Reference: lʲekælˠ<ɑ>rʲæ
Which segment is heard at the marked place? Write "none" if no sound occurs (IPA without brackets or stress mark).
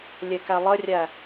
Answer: ə